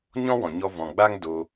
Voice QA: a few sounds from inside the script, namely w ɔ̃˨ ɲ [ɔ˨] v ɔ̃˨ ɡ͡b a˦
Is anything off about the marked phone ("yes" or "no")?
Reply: yes